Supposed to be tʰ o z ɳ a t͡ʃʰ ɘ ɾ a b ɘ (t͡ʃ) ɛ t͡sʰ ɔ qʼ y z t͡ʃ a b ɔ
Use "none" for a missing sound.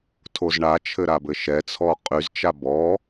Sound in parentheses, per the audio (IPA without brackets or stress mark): ʃ